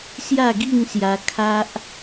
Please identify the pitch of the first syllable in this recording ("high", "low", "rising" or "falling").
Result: falling